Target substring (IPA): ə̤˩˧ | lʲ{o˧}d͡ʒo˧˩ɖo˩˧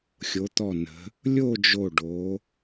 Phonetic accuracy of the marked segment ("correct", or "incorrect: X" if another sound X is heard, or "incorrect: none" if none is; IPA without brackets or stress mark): incorrect: o˥˧